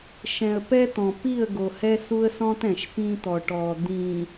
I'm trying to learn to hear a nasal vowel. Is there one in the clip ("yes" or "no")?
yes